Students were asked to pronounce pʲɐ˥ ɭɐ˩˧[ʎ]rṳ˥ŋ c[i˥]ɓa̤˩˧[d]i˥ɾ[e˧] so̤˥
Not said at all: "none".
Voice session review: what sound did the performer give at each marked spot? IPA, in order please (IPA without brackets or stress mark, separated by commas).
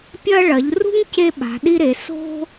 ʎ, e˥, ɗ, e˩˧